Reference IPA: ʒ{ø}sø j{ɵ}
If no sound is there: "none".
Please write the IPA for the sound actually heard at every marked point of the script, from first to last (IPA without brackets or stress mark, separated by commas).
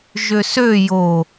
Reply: ø, o